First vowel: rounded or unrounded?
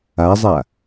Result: unrounded